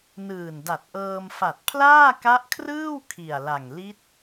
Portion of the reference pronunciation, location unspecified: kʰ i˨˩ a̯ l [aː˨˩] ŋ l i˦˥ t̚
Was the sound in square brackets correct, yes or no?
no